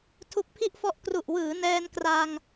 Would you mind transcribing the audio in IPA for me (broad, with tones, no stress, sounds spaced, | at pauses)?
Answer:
tʰ u˦˥ k̚ pʰ i˥˩ ʔ f ɔ˦˥ ʔ k r u˨˩ ʔ w ɯː˩˦ n ɛː˧ n k r a˧ ŋ